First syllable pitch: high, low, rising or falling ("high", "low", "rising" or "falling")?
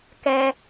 low